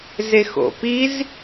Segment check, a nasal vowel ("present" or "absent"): absent